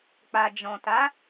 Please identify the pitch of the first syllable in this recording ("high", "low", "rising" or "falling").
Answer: low